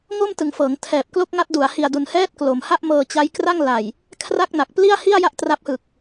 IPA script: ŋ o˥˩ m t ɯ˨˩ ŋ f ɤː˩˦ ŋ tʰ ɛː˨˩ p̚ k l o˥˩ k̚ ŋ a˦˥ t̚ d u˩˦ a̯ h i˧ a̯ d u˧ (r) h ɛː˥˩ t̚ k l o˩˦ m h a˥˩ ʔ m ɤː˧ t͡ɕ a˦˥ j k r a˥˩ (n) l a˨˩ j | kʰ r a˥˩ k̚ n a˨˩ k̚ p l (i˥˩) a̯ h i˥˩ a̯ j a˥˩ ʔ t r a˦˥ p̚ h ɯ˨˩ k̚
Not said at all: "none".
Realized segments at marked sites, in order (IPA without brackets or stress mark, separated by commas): n, ŋ, i˥˩